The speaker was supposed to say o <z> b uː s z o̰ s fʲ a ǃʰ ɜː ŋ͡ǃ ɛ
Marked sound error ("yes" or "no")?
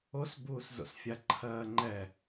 yes